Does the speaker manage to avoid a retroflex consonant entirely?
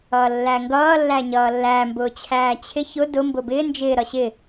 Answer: yes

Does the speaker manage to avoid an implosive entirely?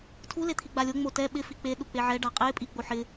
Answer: no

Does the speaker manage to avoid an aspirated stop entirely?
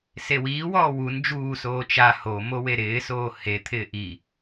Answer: no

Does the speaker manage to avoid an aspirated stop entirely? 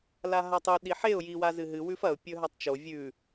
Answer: yes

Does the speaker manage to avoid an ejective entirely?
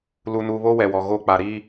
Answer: yes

